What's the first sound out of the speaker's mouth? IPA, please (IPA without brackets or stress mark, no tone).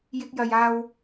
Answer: j